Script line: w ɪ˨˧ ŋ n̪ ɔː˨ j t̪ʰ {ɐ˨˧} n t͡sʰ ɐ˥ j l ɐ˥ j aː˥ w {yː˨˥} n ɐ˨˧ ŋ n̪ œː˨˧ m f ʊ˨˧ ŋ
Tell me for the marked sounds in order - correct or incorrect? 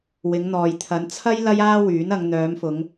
correct, correct

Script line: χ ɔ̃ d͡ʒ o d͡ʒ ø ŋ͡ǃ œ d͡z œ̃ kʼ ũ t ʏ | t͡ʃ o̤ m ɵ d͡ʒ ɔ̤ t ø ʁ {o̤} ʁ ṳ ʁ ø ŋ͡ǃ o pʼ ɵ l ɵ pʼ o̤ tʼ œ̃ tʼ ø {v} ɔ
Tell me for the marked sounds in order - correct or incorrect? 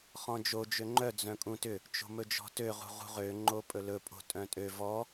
incorrect: ṳ, correct

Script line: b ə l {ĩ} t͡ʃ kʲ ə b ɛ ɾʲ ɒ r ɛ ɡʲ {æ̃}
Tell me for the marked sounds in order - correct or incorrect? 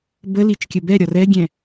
incorrect: i, incorrect: ɛ̃

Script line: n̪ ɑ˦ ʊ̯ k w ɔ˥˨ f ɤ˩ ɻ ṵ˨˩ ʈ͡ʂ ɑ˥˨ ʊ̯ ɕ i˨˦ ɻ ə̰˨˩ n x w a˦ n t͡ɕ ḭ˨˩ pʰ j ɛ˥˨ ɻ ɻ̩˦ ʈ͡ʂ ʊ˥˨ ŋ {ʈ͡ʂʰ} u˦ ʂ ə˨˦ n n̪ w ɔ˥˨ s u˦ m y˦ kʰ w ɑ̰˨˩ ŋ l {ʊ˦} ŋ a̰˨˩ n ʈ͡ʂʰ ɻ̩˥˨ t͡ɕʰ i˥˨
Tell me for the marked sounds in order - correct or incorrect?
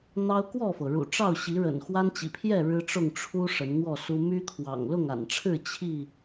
correct, incorrect: ʊ˥˨

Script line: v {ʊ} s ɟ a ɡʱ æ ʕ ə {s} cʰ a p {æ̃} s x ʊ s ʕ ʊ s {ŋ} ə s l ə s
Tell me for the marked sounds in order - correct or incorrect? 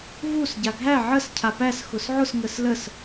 incorrect: u, correct, incorrect: æ, correct

